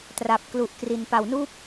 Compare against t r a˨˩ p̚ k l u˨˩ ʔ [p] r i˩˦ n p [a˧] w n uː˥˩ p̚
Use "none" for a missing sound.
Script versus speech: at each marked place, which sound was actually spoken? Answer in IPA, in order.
k, a˨˩

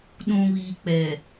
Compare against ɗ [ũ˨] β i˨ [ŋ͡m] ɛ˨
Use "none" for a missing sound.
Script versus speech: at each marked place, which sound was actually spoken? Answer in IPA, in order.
ũ˨, k͡p

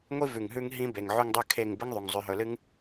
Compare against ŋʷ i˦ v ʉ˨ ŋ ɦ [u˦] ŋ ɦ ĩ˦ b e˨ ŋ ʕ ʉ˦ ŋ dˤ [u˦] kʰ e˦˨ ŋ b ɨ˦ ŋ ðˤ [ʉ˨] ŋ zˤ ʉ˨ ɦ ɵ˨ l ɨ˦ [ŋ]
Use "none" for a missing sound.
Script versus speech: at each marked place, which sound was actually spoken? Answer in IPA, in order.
ʉ˦, ʉ˦, u˨, ŋ

